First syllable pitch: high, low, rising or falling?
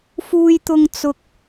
high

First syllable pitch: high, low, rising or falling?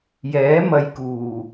rising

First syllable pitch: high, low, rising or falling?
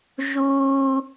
high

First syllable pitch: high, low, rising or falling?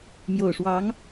low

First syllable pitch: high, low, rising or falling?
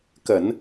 low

